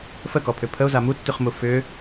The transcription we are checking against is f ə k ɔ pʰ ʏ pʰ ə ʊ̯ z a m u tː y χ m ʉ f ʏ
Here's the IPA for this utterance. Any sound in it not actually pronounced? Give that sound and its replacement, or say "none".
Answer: ʉ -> u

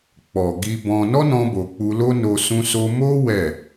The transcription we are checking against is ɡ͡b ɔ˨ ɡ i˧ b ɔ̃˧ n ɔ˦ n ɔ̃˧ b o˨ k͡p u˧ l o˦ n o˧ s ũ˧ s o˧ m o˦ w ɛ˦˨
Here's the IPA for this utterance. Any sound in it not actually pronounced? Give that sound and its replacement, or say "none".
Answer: ɡ͡b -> k͡p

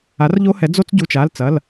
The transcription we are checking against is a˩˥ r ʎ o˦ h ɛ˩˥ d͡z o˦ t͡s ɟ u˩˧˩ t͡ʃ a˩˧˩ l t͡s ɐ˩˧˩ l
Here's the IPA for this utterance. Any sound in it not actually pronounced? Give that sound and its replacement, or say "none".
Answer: none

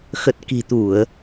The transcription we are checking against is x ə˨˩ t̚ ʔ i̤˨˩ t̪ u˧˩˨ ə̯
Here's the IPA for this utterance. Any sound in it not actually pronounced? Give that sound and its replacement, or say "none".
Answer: ʔ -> k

